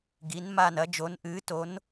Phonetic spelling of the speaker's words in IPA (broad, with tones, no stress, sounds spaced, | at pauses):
ɡ i˧˥ n m a˥˧ n ɐ˧˥ d͡ʒ o˧˥ n ʔ ɨː˧˥ t o˧˥ n